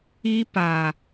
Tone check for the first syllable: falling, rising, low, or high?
high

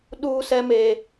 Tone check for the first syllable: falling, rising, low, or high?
high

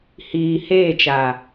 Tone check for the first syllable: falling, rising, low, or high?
low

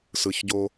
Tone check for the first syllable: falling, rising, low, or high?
low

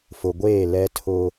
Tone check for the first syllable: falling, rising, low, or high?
low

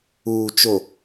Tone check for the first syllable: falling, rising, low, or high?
low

